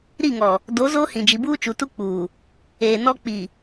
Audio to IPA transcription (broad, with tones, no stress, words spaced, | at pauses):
ɾi˦˨ŋɔ˨ | do˨˦ zoː˦hĩ˨ d͡ʒi˨buː˦t͡ʃu˨ tu˦ k͡puː˨ | eː˨ nɔ˦ k͡pi˨